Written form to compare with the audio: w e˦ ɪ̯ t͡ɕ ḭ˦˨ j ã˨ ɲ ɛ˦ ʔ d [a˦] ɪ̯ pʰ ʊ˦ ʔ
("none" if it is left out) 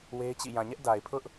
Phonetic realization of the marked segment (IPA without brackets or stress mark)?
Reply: a˨